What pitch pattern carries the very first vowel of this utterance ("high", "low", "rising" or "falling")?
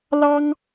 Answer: high